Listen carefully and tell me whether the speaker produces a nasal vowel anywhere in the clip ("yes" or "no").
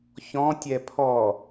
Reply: yes